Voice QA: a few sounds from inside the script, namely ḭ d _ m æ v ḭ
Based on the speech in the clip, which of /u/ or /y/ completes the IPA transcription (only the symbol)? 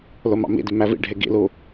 y